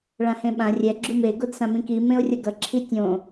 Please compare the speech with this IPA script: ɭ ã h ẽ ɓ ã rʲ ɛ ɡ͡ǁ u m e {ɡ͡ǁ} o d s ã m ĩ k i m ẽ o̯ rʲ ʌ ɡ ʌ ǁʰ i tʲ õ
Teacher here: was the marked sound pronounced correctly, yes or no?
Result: no